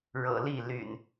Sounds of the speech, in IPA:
ɻ ɤ̰˨˩ l i˥˨ l y̰˨˩ n

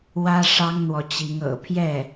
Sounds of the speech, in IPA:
w ä˥ ʂ ɑ˥ ŋ n̪ w ɔ˨ t͡ɕ i˧˥ ŋ ɤ̰˨˩ pʰ j ɛ˥˩

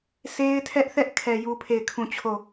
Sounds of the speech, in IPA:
sʰ e˦ ɪ̯ tʰ ɛ˦ ʔ θ ɛ˦ ʔ kʰ ɛ˨ j u˦ pʰ e˦˨ ɪ̯ kʰ ũ˦˨ t͡ɕʰ o˦˨

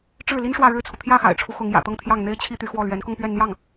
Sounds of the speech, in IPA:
ʈ͡ʂ ɻ̩˥˩ l i˥ n ʂ w ä˥˧ ɻ ɻ̩˥˩ t͡sʰ u˩ t̪ʰ j ä˥˩ x a̰˨˩ ɪ̯ ʈ͡ʂʰ u˦ x ʊ˧˥ ŋ j ä̰˨˩ t̪ ɤ˥˧ ŋ t̪ʰ j ɑ˥˩ ŋ n̪ e˥ ɪ̯ t͡ɕʰ i˥ t̪ y˧˥ x w ɔ˥˩ l ɥ ɛ˧˥ n k ʊ˥˧ ŋ p ɥ ɛ˥˧ n n̪ j ɑ˥˩ ŋ

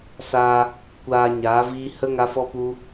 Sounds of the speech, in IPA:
s a˧ | kʷ aː˧ ɲ aː˨˦ v iː˦ h ə˦ ŋ a˦ f ɔ˦ p u˦

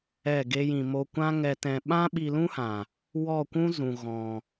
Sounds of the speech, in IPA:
ɛ˦˨ ɡ e˦ j ĩ˧ m o˧ kʷ ã˦ ŋ ɛ˧ t ɛ̃˧ ɓ ã˦ ɓ i˧ l ũ˦ h ã˨ | w ɔ˦˨ kʷ ũ˦ z ũ˨ ɣ ɔ̃˨

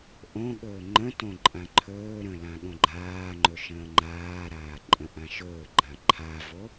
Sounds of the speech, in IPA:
ʔ õ ɠ ɵː ŋ͡ǃ ə̃ t õ ǃʼ ã ǃʰ ɵː ɾ ə̃ l ã ɠ õ ɡ͡ǃ aː ŋ͡ǃ ɵ ʃ ə̃ː ŋ͡ǃ aː ɾ aː ǃʼ ə̃ ʔ ã ʃ ɵː ɡ͡ǃ ã ǃʰ a v o

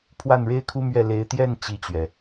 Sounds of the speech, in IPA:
pʰ w a˥˩ n ɻ e˥ ɪ̯ kʰ u˥ m ɥ ɛ˥˩ l e˧˥ ɪ̯ t̪ j ɛ˥˧ n t͡ɕ i˥˩ t͡ɕ ɥ ɛ˩

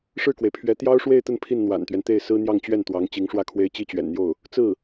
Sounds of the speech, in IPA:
ʂ ɻ̩˥˩ k w e˩ ɪ̯ pʰ ɥ ɛ˧˥ t̪ j ɑ˥ ʊ̯ ʂ w e˥˧ ɪ̯ t̪ ə˥˧ n pʰ i˥˩ n n̪ w a̰˨˩ n t̪ ɥ ɛ˦ n t̪ e˥˩ ɪ̯ s ɹ̩˥ n̪ j ɑ˥˧ ŋ t͡ɕ ɥ ɛ˥˩ n t̪ w ɑ˧˥ ŋ t͡ɕ i˧˥ ŋ ʂ w ä˥˩ kʰ w e˥ ɪ̯ t͡ɕ i˥ t͡ɕ ɥ ɛ̰˨˩ n n̪ j o˥˩ ʊ̯ | t͡s ɹ̩˥˩

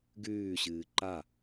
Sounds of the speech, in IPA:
ɡ ʉː ɕ ɨː ǃ a

